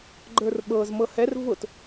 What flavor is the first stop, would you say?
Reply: click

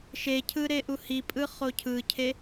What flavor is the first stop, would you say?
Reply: aspirated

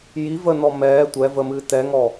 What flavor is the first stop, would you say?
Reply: plain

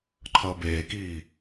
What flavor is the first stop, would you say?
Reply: click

